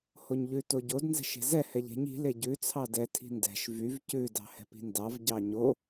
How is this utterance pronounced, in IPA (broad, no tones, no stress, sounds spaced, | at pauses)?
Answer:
h o ɲ ʎ ʉ t o ɟ o d n z ɛ̤ ʃ e̤ z ɛ h ɛ ʎ e̤ ɲ i̤ l e ɟ ʉ t͡sʰ ɑ d ɛ tʰ i̤ n d ɛ̤ ʃ v y v c ʉ d ɑ̤ h ɛ̤ p i̤ n d ɑ v ɟ ɑ ɲ o